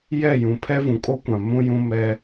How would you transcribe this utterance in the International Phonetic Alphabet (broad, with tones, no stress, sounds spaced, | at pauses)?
j ɛ˦˨ j ũ˨ pʰ ɛ˦ v ũ˨ kʼ o˦ kʷ ã˨ m ũ˦ j ũ˦ m ɛ˦